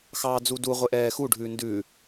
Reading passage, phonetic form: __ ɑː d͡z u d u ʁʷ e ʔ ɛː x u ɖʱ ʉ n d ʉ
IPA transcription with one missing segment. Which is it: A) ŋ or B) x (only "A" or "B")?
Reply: B